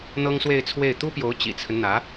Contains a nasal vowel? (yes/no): no